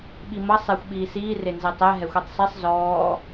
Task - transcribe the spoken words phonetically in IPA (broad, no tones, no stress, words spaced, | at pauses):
ɓimʌ sˤɛxʷ ɓiːsiː renzɛtˤɛ ɦɛxʷɛtˤsˤisˤ zɔː